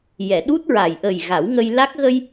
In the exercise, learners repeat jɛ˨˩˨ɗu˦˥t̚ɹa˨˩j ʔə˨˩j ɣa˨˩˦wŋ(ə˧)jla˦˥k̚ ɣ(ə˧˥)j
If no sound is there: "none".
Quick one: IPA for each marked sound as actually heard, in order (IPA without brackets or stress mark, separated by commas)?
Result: ə˧, ə˧